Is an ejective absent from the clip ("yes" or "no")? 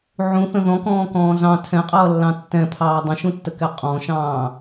no